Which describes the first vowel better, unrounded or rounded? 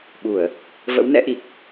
rounded